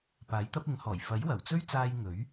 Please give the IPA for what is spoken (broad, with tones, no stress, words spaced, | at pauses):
paː˨˥jt̪ɐ˥p̚ɪ˨˥ŋhɔː˨˩j fɐ˨˥jwɐ˨˩wt͡sɵ˥ɥt͡saː˧j ŋɵ˨˥ɥ